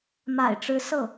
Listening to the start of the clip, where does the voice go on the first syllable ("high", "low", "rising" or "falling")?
low